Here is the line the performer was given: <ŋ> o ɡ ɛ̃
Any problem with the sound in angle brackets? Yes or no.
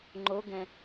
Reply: yes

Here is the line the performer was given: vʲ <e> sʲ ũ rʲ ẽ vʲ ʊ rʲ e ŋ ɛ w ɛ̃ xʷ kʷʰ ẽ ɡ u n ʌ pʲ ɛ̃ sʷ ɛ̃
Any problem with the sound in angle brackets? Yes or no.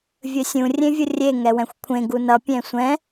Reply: yes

